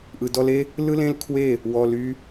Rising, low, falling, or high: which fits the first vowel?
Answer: low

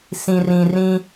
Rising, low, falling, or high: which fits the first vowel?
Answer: low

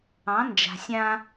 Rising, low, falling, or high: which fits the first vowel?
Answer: rising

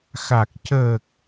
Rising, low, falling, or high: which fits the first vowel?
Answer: low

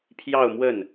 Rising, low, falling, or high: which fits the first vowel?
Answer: falling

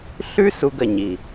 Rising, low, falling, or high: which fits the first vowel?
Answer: high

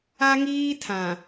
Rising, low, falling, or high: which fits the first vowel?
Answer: high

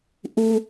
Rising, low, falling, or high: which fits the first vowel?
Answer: high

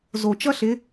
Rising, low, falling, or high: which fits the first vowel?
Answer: low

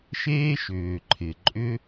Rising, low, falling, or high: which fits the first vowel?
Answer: high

